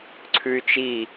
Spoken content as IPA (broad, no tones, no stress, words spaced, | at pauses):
ǀʰʉy̯t͡ʃi